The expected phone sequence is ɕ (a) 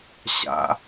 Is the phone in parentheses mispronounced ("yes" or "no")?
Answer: yes